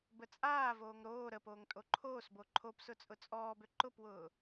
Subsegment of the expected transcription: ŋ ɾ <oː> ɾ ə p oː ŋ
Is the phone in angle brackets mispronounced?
no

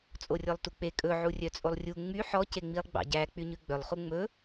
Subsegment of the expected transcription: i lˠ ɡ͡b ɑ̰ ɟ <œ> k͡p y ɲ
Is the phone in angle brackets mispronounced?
yes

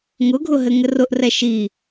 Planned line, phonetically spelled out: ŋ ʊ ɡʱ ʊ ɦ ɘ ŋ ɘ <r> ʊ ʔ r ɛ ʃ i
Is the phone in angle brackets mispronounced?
no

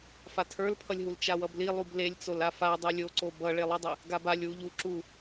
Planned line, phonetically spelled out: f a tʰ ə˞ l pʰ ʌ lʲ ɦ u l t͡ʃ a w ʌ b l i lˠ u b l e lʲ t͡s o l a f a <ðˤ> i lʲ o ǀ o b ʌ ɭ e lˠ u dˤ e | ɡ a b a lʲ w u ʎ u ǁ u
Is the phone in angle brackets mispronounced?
yes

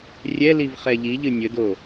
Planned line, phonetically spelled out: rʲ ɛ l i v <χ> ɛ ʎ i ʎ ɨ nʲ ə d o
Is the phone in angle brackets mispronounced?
no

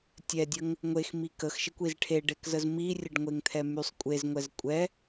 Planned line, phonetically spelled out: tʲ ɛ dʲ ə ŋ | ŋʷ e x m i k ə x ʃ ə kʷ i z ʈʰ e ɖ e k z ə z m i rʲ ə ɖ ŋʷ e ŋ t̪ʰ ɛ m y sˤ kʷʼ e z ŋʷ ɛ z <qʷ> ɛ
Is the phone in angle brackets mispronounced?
yes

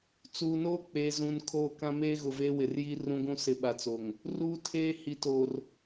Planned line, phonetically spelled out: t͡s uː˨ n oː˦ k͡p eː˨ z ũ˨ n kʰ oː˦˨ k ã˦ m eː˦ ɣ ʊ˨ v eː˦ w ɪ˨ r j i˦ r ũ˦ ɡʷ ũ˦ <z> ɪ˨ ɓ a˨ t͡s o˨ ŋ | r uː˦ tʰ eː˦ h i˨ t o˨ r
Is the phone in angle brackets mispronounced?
yes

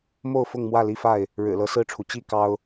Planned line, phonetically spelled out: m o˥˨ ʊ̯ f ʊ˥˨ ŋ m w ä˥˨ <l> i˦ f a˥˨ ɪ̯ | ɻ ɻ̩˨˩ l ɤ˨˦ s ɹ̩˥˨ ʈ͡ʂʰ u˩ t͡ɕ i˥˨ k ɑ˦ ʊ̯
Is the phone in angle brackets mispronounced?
no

